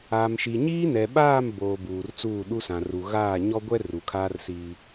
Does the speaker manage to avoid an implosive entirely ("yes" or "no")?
no